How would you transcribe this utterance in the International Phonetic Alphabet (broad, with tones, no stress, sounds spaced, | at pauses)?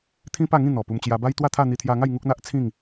t̪ʰ ĩ˦ p a˥˧ ŋ ĩ˥˧ n̪ ɔ˨˩ p u˧ m t͡ɕ j a˧ b a˦ j t̪ w a˥˧ t̪ʰ a˥˧ n̪ i˧ t̪ʰ j a˧ ŋ a˥˧ j ŋ u˦ k̚ n̪ a˦ ʔ t͡sʰ ĩ˥˧ ŋ